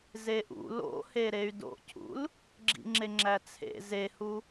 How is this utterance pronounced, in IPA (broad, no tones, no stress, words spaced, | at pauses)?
zeʔṵ lo̰he ɾey̯do̰cʰṵl | ɡ͡ǁḭŋ͡ǁeŋ͡ǁæt͡sʰḛ zehu